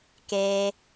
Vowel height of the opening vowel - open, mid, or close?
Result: mid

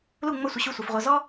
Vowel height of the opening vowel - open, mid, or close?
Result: close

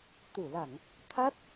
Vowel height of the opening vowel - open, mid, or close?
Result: close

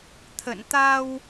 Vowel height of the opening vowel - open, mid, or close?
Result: mid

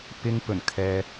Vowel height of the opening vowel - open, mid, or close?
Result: close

